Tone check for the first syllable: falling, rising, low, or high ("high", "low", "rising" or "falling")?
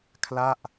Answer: falling